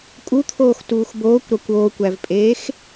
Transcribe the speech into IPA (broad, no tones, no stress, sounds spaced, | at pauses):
kʼ u t̪ʰ oː x t uː x b oː kʷ ɾ ɒ kʷ oː kʷ æ v pʼ eː x